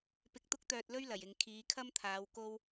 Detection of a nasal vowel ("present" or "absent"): absent